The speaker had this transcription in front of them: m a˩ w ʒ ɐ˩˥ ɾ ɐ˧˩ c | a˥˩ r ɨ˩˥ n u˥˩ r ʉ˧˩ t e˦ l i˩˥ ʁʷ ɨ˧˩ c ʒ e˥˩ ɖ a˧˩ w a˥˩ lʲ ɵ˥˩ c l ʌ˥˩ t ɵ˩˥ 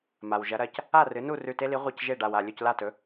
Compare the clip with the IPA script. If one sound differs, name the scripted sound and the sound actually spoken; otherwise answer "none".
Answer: ʌ˥˩ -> a˥˩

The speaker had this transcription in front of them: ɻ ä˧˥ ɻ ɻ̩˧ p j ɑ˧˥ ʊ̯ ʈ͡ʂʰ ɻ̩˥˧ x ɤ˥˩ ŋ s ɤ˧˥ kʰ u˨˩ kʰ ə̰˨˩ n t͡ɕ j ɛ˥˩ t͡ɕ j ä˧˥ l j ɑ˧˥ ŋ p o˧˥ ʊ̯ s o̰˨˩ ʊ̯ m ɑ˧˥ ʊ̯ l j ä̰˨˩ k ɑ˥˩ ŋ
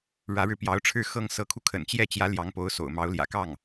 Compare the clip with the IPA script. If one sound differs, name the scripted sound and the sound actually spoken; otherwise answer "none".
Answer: u˨˩ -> u˧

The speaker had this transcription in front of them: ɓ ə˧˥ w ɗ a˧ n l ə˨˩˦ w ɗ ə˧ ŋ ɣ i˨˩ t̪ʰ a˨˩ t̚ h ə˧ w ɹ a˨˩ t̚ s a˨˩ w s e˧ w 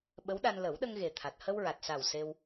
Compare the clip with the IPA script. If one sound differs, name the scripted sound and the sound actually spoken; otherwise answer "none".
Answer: i˨˩ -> e˨˩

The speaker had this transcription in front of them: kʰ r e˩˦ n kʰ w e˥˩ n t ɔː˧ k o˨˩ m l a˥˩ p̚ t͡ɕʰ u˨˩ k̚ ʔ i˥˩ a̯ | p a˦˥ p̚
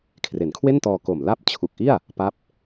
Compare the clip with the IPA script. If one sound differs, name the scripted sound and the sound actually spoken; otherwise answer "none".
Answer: none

